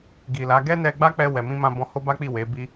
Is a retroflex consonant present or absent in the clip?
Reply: absent